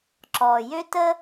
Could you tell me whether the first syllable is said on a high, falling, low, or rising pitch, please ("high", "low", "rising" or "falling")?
low